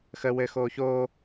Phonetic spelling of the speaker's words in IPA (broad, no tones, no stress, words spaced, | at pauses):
xə wɘxoː çoː